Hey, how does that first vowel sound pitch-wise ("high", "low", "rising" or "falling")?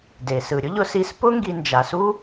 low